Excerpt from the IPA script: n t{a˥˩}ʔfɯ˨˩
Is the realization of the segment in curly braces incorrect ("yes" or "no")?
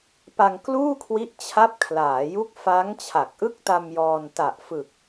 yes